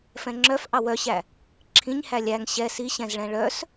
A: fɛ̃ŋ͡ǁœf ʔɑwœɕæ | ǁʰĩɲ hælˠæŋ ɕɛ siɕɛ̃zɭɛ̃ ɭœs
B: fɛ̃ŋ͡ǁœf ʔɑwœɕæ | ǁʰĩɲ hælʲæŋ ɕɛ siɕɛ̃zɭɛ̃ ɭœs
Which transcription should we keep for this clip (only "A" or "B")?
B